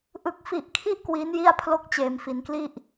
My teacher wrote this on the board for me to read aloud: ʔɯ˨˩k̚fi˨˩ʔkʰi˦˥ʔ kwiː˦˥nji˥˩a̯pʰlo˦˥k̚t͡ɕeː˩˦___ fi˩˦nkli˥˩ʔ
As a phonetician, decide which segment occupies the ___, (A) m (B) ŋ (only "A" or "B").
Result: A